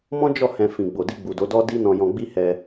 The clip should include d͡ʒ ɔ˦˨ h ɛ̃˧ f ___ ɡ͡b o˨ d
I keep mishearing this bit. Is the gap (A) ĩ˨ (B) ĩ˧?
A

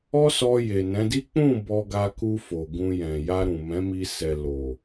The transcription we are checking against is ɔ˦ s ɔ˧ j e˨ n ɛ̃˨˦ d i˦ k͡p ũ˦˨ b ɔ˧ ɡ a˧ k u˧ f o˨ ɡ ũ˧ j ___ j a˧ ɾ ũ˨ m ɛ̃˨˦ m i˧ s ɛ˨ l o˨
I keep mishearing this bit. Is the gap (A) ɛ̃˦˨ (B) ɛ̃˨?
B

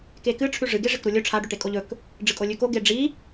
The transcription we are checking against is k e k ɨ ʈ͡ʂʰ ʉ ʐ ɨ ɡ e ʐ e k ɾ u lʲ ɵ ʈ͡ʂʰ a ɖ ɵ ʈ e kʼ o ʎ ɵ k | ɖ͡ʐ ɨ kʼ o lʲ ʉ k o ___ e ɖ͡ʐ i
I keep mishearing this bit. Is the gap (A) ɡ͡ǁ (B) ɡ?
B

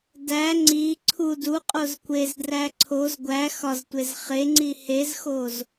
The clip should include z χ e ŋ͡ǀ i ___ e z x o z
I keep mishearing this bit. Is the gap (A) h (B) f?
A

